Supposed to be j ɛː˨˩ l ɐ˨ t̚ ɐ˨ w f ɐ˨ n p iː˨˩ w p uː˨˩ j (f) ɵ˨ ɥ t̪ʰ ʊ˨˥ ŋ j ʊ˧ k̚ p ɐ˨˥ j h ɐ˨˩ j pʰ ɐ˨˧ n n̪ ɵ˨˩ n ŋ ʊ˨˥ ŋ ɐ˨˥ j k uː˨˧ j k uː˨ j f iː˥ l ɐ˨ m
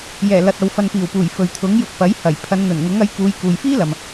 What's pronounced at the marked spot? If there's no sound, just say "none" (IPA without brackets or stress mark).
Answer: f